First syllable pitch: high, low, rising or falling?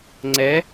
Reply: rising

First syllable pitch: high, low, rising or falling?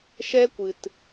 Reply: high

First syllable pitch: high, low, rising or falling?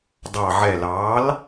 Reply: low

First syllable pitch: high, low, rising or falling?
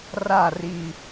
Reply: falling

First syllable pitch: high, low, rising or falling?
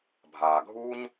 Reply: low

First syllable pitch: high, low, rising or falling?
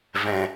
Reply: low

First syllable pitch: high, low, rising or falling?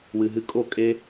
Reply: low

